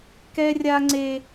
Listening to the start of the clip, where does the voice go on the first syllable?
high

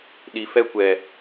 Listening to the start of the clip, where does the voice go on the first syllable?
low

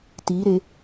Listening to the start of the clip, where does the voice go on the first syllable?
rising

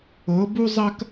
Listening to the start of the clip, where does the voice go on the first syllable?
rising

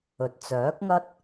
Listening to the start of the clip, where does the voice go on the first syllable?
low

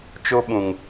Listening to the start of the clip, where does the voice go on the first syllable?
high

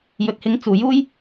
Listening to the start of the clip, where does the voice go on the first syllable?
low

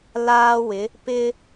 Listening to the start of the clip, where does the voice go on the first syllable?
high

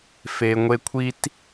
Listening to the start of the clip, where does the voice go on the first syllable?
low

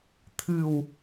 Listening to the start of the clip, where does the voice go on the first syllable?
low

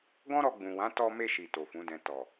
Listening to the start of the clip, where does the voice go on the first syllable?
high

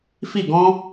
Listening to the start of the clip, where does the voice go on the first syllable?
falling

